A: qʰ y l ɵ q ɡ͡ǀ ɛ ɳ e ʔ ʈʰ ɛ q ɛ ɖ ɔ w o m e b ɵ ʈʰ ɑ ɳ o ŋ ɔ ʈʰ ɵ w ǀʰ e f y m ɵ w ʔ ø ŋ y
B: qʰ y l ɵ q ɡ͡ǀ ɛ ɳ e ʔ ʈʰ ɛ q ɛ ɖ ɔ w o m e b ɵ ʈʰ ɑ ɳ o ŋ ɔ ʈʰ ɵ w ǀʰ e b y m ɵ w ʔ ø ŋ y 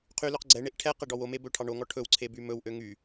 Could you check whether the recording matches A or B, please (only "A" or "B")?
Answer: B